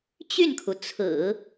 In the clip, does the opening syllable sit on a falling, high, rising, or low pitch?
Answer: falling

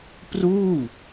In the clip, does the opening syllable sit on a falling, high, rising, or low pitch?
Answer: falling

